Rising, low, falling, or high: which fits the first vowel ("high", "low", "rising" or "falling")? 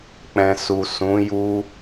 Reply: low